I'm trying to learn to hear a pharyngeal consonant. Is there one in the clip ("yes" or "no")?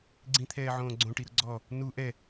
yes